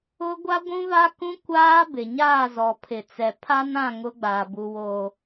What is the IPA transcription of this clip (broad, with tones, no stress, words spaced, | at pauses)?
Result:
ʊ˦ ɡʷa˦ɡʷũ˦va˦kũ˦ kʷaː˦ bɪ˨ ɲaː˦˨zɔ˨pʰɪ˨t͡sɛ˨ pʰa˦nã˦˨ ŋʊ˦ɡ͡baː˨bu˨woː˨